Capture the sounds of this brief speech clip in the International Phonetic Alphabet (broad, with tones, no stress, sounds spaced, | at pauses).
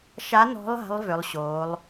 ʃ a˨˦ n ɔ̤˨˦ lˠ a̤˨˦ lˠ v ʏ˨˦ lˠ ɕ oː˨˦ lˠ